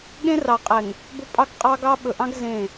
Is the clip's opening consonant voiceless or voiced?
voiced